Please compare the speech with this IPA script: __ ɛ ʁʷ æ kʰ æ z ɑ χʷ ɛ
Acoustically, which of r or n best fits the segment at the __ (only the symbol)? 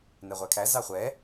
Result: n